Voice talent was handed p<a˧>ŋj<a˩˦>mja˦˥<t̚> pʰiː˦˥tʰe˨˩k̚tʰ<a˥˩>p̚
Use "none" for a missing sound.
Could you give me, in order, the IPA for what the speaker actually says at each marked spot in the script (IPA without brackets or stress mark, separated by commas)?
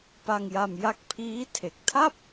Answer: a˧, a˧, k̚, a˥˩